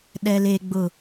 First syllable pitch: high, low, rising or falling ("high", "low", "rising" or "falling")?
low